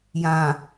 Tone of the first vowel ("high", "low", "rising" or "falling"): low